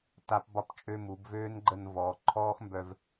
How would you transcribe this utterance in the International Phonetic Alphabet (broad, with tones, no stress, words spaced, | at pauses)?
ta˦pbɒ˦pt͡ʃʼø˦mu˨˦b vøː˦n ɡ͡ǃə˧nvɔː˨ ǃʰɔː˦xmbœ˧v